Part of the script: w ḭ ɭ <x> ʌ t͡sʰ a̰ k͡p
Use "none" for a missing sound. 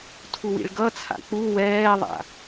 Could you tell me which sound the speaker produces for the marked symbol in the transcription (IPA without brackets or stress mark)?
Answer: ɡ